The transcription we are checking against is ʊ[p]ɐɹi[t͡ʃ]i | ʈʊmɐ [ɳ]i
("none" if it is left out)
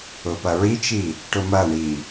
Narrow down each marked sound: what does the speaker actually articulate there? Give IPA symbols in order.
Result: p, t͡ʃ, ɳ

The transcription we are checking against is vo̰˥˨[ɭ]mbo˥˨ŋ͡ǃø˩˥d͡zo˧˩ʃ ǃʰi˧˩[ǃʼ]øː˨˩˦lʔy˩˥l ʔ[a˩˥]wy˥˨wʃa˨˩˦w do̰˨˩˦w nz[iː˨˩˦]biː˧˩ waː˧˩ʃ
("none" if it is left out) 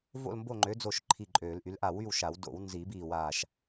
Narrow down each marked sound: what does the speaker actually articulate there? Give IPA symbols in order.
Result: l, ǃʼ, a˧˩, i˨˩˦

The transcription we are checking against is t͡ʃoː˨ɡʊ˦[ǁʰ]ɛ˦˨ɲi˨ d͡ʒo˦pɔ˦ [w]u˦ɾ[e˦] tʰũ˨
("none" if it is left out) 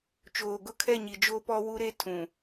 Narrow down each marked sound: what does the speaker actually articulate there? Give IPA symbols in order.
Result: kʰ, w, e˦

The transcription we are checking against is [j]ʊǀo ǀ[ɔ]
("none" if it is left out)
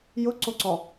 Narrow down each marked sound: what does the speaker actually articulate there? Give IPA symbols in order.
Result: j, ɔ

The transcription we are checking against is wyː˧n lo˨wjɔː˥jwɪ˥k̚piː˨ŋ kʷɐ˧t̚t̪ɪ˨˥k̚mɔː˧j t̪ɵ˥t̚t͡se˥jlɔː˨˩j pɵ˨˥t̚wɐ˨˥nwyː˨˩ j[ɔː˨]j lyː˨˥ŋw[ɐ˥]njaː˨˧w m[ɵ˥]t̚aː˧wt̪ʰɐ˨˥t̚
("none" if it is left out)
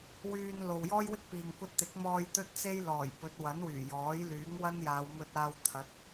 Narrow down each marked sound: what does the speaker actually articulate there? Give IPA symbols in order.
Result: ɔː˨˥, ɐ˥, ɵ˧

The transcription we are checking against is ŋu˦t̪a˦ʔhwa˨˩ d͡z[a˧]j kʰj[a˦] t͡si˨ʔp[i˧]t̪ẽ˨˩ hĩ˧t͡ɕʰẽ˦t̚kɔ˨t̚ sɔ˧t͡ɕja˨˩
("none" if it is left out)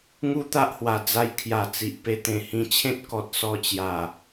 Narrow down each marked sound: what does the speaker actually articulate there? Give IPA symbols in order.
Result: a˧, a˨˩, e˧

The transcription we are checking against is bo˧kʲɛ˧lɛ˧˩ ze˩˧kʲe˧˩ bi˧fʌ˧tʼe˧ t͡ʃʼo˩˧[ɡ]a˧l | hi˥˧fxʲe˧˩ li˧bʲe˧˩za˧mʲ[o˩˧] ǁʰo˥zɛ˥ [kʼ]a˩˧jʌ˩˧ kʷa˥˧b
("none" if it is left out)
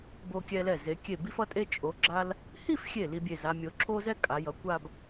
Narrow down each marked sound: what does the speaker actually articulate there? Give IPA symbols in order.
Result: ɡ͡ǁ, o˩˧, kʼ

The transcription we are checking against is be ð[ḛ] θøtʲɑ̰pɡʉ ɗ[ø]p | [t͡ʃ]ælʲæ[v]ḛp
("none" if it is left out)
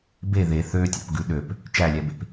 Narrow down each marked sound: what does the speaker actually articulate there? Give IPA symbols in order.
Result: e, ø, t͡ʃ, b

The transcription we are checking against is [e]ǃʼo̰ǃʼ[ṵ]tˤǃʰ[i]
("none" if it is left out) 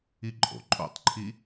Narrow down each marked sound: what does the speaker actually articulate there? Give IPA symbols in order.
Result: i, o̰, i

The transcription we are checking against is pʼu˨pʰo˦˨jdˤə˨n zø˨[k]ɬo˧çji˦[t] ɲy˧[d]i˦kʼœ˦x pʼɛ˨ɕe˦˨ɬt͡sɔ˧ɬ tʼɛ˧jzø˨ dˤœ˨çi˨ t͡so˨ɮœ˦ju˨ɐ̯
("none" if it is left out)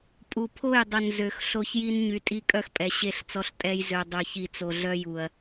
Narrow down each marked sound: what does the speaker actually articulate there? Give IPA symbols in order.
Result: x, n, tʼ

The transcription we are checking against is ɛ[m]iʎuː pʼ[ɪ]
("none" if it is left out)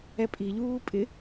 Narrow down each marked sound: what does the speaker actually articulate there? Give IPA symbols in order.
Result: pʼ, ɪ

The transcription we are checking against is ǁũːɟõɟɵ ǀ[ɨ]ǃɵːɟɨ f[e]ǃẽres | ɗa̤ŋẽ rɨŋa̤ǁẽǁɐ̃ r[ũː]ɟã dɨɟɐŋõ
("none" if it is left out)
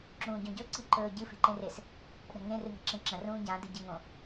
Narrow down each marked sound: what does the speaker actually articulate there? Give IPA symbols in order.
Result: i, e̤, ũː

